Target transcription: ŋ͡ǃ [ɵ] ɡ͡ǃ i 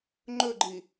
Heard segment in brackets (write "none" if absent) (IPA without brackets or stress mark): ɵ